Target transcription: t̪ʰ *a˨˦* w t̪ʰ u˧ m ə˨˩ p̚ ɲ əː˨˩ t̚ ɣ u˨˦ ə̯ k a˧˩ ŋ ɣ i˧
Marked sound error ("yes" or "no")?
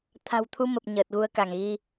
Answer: yes